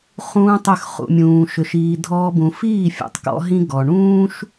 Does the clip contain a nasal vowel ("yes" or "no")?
yes